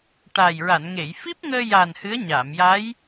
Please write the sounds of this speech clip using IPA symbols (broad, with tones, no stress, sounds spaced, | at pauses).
ʈ a˨˩ j ɹ a˨˩˨ n ŋ e˨˩˨ j f i˦˥ p̚ ŋ əː˧ j a˨˩ n h ɨ˧˥ ə̯ ɲ aː˨˩˨ m j a˧˥ j